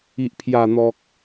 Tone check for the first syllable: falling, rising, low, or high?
low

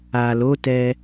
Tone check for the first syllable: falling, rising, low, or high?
low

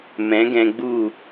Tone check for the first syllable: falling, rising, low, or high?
rising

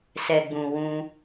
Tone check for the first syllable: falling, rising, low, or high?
low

